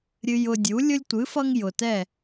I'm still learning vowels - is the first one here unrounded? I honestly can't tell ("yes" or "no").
yes